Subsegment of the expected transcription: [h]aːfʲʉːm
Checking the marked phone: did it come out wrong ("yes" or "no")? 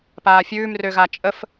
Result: yes